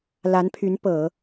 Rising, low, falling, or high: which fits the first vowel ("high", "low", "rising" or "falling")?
rising